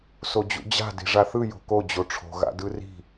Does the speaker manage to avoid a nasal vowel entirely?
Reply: yes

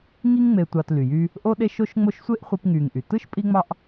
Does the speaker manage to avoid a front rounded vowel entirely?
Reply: no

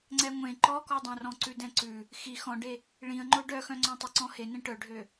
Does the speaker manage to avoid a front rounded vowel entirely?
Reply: no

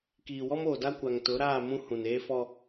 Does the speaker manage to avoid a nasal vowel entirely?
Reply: no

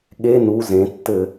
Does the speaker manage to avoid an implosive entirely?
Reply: no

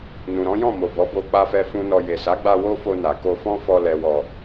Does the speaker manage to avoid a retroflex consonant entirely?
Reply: yes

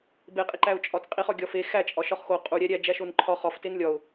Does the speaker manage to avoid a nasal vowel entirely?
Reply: yes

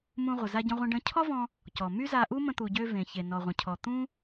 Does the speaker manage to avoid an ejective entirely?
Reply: yes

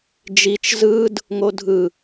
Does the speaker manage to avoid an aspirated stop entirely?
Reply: yes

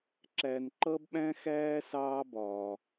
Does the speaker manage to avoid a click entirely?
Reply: no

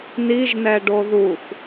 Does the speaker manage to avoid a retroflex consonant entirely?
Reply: no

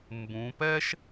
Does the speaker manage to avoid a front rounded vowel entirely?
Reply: yes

